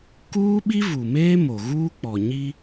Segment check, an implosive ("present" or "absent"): present